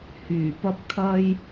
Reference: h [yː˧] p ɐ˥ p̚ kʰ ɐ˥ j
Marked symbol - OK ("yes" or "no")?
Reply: no